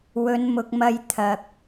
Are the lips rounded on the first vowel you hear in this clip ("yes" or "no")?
yes